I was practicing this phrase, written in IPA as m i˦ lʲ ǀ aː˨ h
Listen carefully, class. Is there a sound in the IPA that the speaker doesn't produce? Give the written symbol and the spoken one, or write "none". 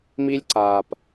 h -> p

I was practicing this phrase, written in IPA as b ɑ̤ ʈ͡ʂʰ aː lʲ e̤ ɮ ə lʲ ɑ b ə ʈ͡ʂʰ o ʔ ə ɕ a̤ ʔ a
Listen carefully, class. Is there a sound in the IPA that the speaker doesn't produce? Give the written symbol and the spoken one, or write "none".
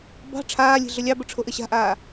a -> aː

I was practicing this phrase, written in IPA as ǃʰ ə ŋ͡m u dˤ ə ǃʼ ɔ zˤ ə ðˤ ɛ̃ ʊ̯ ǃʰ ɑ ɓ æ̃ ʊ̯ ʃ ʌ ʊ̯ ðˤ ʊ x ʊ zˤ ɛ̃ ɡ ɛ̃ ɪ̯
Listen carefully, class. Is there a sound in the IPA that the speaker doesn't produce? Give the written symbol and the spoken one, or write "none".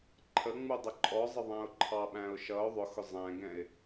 none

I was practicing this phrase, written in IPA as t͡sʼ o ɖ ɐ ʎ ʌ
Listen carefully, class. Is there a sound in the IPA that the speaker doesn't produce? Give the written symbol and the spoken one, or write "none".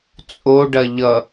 none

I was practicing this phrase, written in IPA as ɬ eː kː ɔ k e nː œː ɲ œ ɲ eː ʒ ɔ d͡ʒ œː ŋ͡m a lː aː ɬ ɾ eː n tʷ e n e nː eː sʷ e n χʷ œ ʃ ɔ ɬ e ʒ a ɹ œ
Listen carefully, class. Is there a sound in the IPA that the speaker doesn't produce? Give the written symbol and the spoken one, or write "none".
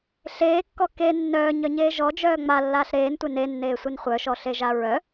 none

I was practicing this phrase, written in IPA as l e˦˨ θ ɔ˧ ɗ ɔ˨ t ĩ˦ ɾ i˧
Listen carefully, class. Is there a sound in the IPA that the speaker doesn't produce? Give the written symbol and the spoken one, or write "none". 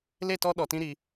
θ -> t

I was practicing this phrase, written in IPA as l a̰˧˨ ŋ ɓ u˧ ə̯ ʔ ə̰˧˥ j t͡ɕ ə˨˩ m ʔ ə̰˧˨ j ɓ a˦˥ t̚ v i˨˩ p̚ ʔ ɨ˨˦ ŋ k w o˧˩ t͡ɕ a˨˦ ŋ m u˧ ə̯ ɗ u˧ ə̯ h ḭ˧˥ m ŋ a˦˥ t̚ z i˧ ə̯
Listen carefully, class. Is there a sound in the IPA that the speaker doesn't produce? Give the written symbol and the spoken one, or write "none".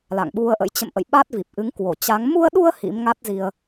ə˨˩ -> ə̰˧˨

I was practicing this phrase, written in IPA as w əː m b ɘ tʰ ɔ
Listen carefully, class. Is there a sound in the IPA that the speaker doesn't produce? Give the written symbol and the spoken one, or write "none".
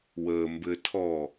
none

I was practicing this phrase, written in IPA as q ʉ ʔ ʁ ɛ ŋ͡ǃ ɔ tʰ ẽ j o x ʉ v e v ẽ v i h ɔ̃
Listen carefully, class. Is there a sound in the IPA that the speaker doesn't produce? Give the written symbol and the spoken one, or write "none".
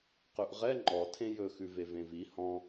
o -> ɵ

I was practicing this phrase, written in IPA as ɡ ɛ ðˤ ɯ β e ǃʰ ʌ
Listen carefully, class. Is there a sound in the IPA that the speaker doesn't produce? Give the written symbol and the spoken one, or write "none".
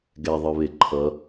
none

